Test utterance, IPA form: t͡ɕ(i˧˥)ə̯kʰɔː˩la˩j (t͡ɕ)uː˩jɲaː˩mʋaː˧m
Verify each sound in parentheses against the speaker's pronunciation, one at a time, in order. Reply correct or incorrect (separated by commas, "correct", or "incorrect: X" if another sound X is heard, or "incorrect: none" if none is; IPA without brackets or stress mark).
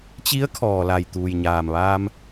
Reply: correct, incorrect: t̪